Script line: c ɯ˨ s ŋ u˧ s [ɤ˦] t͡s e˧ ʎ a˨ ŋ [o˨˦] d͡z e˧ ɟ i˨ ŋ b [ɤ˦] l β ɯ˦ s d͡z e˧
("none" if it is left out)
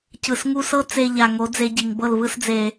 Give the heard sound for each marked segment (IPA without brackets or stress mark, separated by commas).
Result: ɤ˦, o˨˦, ɤ˦˨